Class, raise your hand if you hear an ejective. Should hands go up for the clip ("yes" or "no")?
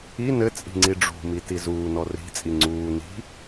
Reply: yes